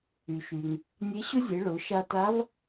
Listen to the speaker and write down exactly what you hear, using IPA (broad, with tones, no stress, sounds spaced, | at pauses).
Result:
y˩ ʃ y˩ ŋ | nʲ e˧˥ ɕ ʊ˥ zʲ e˩˧ ɭ ʊ˩˧ ʃ a˧ t a˧˥ v